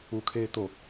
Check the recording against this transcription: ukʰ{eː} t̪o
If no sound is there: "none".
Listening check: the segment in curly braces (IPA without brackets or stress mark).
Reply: eː